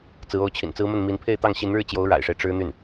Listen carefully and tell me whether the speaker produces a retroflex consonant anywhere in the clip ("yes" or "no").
yes